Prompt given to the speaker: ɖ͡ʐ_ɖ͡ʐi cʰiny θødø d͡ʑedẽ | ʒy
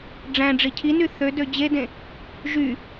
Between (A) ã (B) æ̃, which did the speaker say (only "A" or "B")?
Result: B